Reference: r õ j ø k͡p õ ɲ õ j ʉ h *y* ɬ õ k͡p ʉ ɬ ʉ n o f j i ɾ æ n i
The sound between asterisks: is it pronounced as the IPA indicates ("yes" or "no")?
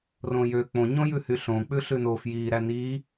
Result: yes